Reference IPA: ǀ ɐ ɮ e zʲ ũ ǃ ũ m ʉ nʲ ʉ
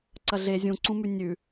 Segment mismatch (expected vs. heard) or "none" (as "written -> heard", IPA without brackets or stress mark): ǃ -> ǀ